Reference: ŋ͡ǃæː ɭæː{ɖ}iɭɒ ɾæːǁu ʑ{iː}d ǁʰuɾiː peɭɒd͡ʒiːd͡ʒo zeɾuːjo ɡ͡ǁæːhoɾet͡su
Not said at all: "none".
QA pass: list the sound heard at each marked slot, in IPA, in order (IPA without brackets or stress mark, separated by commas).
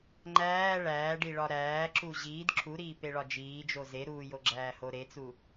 ɖ, iː